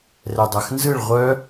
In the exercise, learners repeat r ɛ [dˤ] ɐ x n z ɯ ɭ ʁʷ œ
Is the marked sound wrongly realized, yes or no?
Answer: no